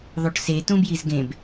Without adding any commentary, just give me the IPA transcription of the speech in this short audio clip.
ðˤoʈse tũbjizɡẽb

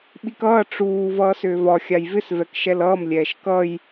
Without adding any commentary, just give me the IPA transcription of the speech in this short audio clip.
ɓikʌː ʈ͡ʂuː vʌːsʏːvɒ xʲajvɪs vɛkʃɛlʌːm lʲɛːʃkʌj

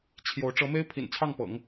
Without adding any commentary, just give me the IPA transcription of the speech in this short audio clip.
t͡ɕʰjo˧˥ʊ̯ ʈ͡ʂɤ˧˥me˥ɪ̯pʰḭ˨˩nt͡sʰɑ˥˩ŋ pɤ̰˨˩˦ŋ

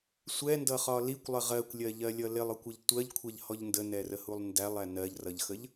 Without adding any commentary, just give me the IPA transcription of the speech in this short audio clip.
sʷɛndʌχɒ likʷlˠə ʁɜkʷlʲɜʎɜlʲʌ lɪlˠɔkʷʌʎ tʷɜʎkʷʰɛʎhɔʎ ndənɛrəhulˠ ndælˠæ nɜʎrʌʎxəʎ

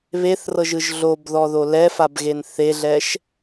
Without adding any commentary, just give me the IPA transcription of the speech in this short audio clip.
βeθrɤʒɯʒ ɮobðɔðo lɛfabɣen θeɮɛʃ

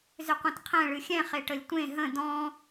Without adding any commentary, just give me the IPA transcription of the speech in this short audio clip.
zʏqʷẽtqʰɛ̃ ɭɨxʲɛ̃ χeʈəlʲtʷẽ ɦə̃ dɔ̃

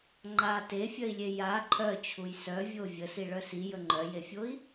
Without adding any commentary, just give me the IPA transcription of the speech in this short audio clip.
ŋ͡ǃa tefʲœi̯lʲe ja ǃʰœt͡ɕʰuj sœvʲo vʲəsiɭœ sijə ŋ͡ǃœjefʲoi̯

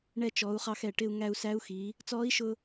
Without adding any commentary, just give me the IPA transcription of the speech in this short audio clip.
ɳɛ˧t͡ʃɔ˩˧u̯χɑ˧x ɛ˩ʈɪ˧u̯ ŋæ˧u̯sæ˧˥u̯xiː˩˧ | t͡sɔː˧˥i̯ʃʊː˧

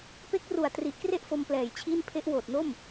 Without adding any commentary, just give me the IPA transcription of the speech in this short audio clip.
pe˦˥k̚ru˨˩a̯ tri˨˩ʔkre˥˩ʔfo˧m plɛː˨˩jt͡ɕʰiː˥˩n pʰe˦˥ʔwoː˨˩t̚no˥˩m

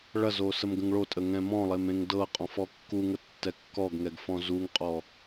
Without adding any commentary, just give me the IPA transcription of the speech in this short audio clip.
ɭɐzosəmɡə̃ŋ ɭotʼəŋɛ̃ mɔ̃lˠemẽŋ dɤqʼɔ̃fɔ kːuŋətːɛ kːɔɡŋɛɡfɔ̃ zuŋqʼɔ

